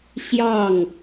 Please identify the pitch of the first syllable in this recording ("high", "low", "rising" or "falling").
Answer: falling